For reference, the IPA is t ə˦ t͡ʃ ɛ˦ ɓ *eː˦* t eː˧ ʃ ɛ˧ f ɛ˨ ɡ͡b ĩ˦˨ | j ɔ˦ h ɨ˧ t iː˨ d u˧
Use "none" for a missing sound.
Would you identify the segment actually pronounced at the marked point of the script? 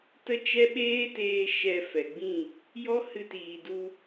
eː˦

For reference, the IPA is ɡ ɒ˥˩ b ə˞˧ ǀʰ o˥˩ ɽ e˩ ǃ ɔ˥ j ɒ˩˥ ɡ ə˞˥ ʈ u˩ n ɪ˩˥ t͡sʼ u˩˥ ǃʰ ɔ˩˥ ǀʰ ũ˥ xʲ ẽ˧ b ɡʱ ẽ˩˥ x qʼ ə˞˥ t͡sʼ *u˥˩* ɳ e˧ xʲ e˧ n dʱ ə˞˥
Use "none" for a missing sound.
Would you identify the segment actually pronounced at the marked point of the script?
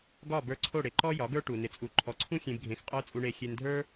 u˧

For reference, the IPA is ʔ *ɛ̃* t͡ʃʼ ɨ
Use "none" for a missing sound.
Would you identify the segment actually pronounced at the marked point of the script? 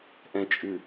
ɛ̃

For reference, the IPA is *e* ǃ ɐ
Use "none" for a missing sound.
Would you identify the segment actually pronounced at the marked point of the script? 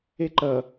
e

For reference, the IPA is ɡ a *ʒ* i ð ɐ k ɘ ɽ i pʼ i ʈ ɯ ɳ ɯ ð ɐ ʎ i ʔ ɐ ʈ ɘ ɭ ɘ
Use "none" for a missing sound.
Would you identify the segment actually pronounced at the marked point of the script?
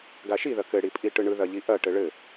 ʃ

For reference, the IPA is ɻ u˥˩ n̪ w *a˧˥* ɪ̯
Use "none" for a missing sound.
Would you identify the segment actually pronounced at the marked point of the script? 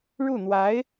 a˧˥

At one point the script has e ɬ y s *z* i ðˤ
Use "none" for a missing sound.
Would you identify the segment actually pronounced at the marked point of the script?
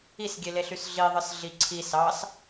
ɮ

